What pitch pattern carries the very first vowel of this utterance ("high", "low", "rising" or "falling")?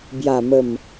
low